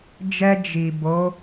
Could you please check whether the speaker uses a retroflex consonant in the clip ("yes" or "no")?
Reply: no